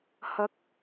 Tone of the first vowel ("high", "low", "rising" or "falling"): low